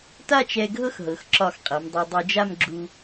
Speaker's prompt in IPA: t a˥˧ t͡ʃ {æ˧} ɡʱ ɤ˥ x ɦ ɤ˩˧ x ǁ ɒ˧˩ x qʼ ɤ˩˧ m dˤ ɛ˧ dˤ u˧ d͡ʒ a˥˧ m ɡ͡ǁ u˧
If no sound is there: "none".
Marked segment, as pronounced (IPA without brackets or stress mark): ɛ˧